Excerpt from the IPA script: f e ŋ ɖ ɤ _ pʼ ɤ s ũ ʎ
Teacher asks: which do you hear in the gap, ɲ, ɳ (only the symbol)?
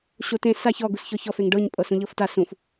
ɲ